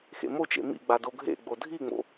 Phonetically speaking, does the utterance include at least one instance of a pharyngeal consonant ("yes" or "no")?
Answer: no